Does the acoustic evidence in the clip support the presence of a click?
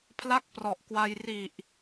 no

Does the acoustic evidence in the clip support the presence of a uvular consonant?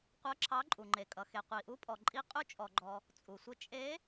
yes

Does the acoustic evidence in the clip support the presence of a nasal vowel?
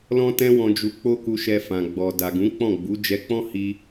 yes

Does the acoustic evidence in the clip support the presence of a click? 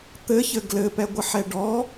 no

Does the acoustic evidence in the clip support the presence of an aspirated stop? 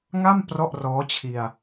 yes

